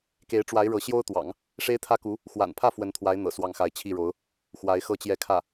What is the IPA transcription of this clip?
k e˧˥ ɪ̯ ʈ͡ʂ w a˧˥ ɪ̯ ɻ ɤ˧˥ ɕ j o˥ ʊ̯ t̪ w ɑ̰˨˩˦ ŋ | ʂ e˥ ɪ̯ t̪ʰ ä˥ k u˧˥ | x w a̰˨˩ n pʰ ä˥˩ f w ə˧˥ n t̪ʰ w a˧˥ ɪ̯ n̪ ɤ̰˨˩ s w ɑ˥˩ ŋ x a˧˥ ɪ̯ t͡ɕʰ i˥˩ ɻ o˧˥ ʊ̯ | x w a˧˥ ɪ̯ x ɤ˥˧ t͡ɕ j ɛ˥˧ kʰ ä˥˩

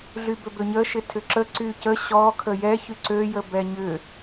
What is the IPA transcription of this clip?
ɮ y b ø b ø ɲ ə ʃ ɪ tʰ ʏ ǁ ə ǀ y c ə ɕ ɔ kʰ ə j ɛ ç y ǀ ø j ə b ɛ ɲ ʏ

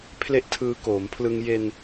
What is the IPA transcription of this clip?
pʰ l e˥˩ ʔ tʰ ɯː˧ k oː˩˦ m pʰ l ɯ˧ ŋ j e˧ n

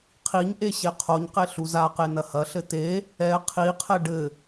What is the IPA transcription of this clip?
qʰ i ɲ ʔ e ɕ e qʰ o ɲ q e ɬ u z a q e n ɐ h ɐ ɬ ɘ t e | ɛ qʰ i qʰ ɛ ɖ ɘ

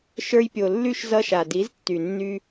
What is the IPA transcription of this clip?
ʃ ə˞˧ j pʲ o˨ lː y˦˨ ʃ z ʌ˧ ʃ a˨ d i˨˦ z tː y˨ nː y˧

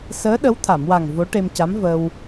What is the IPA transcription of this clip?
s əː˧˥ ɗ ə˧˥ w t̪ʰ a˨˩˨ m w a˨˩ ŋ v o˧˥ ʈ e˧ m c a˧˥ m v ə˧ w

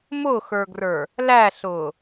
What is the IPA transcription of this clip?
m ʊ x ə˞ ɡ r ə˞ | l æ ɬ ʊː

